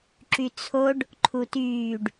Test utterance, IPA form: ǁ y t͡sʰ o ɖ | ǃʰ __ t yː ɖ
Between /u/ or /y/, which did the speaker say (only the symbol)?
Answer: u